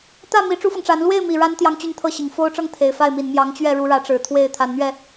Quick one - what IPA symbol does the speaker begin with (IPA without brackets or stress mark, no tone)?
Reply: t̪